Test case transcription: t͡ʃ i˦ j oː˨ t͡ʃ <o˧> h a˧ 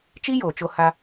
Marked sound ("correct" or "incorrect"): correct